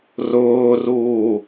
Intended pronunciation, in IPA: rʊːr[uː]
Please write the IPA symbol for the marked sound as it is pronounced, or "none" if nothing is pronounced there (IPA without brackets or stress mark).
uː